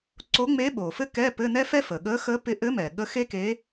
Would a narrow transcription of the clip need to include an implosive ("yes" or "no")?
yes